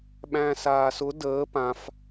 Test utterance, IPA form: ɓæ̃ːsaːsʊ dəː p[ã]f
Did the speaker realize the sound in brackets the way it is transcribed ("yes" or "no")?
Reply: yes